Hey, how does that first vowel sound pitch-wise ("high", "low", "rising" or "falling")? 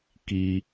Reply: low